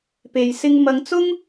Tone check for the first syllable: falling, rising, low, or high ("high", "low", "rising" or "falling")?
low